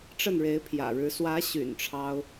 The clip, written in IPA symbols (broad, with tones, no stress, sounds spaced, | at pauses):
ʈ͡ʂ ə˥˩ n ɻ e˧˥ ɪ̯ pʰ j ä̰˨˩ ɻ ɻ̩˧˥ s w ä˧˥ ɕ y̰˨˩ n ʈ͡ʂʰ ɑ˥ ʊ̯